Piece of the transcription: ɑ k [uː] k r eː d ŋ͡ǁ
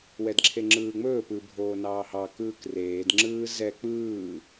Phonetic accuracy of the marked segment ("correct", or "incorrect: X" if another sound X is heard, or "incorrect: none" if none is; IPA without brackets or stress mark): incorrect: ɯː